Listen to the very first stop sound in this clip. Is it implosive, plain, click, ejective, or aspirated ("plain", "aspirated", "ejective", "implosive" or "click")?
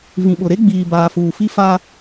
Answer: implosive